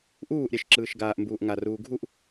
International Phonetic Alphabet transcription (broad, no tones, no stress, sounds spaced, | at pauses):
ʔ uː ʔ ɾʲ ɛ ʃ ǁ ɯː ʃ ɡ aː ʔ m b uː ʔ ŋ a r uː ɡʱ u ʔ